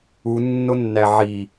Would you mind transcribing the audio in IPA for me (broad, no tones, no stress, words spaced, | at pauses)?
u nːonːæʕi